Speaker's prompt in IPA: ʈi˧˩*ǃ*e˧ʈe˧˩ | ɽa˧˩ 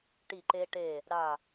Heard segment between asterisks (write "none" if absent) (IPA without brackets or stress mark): ǃ